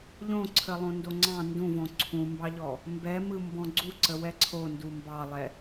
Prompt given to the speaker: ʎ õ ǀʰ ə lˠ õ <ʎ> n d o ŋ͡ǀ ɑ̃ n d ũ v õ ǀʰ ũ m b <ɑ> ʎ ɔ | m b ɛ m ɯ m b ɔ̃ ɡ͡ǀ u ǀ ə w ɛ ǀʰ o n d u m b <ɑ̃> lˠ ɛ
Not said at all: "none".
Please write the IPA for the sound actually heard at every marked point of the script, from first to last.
none, ɑ, ɑ

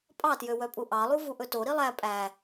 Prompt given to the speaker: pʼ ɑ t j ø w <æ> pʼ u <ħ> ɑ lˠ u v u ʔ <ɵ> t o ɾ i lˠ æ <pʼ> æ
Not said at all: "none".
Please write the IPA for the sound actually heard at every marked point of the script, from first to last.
œ, ʔ, ɵ, pʼ

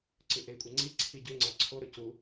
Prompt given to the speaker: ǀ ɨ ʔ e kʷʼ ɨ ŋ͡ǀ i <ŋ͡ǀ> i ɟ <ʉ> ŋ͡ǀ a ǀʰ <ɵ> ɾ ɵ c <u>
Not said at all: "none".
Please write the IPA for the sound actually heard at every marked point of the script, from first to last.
ǀʰ, ʉ, o, u

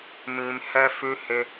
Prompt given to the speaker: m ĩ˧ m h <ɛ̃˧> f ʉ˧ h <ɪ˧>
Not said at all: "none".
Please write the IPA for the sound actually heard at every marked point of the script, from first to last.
ɛ˧, ɪ˧

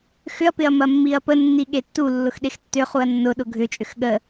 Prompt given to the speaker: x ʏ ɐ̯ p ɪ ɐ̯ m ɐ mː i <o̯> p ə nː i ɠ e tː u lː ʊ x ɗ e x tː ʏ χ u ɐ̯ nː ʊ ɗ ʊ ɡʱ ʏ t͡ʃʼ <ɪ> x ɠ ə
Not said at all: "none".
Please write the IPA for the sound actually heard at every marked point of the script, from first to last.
ɐ̯, ʏ

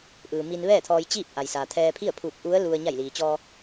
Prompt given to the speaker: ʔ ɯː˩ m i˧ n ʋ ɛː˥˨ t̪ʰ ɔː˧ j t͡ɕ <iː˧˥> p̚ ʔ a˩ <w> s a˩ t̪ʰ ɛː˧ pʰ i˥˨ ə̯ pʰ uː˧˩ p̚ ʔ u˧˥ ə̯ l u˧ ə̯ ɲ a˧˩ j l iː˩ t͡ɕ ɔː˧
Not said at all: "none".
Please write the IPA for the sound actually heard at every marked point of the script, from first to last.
iː˥˨, j

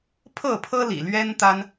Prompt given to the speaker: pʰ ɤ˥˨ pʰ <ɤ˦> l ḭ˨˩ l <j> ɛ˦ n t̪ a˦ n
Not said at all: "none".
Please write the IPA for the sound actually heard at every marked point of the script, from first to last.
ɤ˦, ɥ

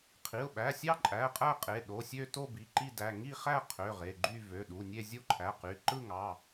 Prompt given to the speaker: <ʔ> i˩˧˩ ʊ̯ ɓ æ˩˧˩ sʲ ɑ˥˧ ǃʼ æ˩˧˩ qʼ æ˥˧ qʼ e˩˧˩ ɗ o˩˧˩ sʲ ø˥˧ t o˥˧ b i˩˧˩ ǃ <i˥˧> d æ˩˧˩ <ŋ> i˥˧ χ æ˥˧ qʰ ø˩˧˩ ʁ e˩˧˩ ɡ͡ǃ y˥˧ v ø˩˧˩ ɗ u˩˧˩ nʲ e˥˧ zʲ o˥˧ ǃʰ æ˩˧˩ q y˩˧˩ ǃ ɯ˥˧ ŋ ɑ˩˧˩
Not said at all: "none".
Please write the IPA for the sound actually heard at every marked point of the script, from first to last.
qʰ, i˥˧, ŋ

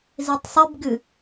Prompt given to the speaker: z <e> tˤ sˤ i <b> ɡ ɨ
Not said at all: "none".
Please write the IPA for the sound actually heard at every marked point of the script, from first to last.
i, b

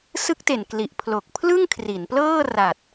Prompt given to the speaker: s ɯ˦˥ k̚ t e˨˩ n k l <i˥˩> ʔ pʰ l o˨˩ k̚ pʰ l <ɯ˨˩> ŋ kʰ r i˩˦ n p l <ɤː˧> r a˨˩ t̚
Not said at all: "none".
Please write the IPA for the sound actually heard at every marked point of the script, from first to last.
i˨˩, ɯ˥˩, ɤː˥˩

